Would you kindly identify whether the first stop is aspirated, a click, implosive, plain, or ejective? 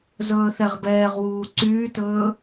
plain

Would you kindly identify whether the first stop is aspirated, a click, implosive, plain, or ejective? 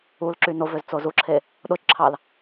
click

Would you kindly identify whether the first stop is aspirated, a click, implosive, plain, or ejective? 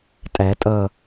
ejective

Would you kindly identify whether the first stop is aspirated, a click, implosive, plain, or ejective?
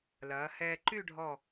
click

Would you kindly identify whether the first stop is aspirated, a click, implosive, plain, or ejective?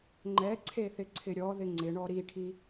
click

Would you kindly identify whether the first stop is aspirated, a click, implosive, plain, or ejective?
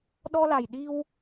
implosive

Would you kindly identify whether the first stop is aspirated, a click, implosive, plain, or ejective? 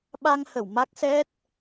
implosive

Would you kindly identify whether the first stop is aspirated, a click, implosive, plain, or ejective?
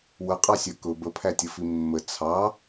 ejective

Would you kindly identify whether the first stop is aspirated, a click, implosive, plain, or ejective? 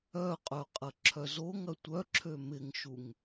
ejective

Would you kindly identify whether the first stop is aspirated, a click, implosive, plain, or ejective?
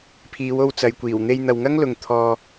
aspirated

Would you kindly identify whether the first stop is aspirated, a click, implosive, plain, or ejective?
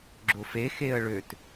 click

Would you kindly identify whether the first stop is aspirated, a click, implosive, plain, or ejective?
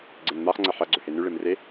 click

